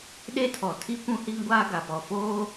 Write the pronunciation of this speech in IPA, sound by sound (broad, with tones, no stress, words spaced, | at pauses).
ɗe˦tʰɔ˨ tʰi˦kʷũ˦hi˦ŋ ɡʷaː˦ɡa˨pɔ˨foː˦